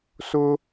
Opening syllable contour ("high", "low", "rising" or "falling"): high